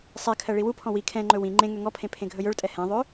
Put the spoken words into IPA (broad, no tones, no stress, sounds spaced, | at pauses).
sˤ ɛ kʰ ɜ ɭ i w u pʰ ɔ̃ w i kʰ ɛ̃ ŋ͡ǃ ɵ w ĩ ŋ͡ǃ ẽ ŋ ø ŋ ɔ pʰ ẽ pʰ ẽ ɡʱ ɵ j ɵ ɭ tʼ ɛ h ɛ̃ ðˤ ø